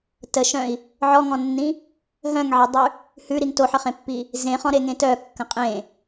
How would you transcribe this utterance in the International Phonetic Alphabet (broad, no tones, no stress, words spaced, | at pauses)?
təʃœ̃i̯ | ʕɔŋɔ̃nːĩ | ɦœ̃ŋʕedˤʉ | hʉɾiŋ toħəχẽpːi | zẽχɔ̃ɾeŋẽ tœkːə̃ qʼẽ